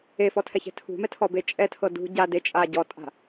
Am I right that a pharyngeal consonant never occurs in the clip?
yes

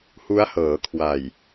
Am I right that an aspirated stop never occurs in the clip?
no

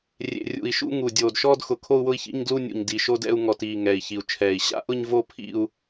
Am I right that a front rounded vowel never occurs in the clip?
yes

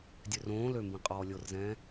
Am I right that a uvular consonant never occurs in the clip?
no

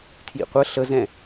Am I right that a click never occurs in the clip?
yes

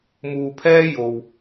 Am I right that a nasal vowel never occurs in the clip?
yes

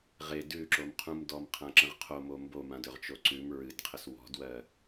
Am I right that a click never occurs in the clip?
no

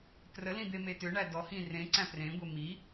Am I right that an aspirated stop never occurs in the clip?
yes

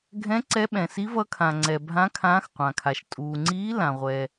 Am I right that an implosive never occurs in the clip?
no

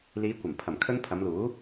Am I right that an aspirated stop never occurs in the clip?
no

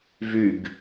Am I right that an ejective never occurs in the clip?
yes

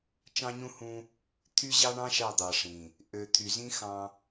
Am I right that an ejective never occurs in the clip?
yes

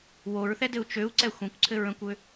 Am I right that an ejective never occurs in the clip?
yes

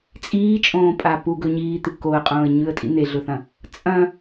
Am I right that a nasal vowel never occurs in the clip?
no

